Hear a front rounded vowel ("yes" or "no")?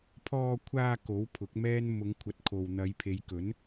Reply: no